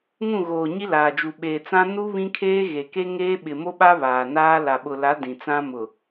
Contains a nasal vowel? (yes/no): yes